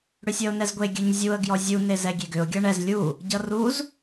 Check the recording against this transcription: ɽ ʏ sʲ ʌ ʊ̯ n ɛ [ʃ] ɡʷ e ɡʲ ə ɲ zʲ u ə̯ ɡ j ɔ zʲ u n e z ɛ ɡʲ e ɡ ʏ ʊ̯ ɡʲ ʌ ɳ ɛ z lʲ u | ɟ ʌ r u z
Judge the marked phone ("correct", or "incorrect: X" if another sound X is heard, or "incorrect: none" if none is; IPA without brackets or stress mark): incorrect: z